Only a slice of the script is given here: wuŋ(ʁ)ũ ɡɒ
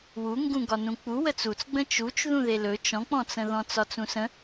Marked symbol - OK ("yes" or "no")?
no